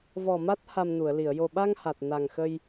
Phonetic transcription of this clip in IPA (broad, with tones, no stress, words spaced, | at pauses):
vɔ˨˩ma˦˥t̚ ha˧mnu˨˩˨ə̯li˨˩˨ə̯ jo˨˩ɓa˧ŋ ha˨˩t̚ na˨˩ŋxə˧j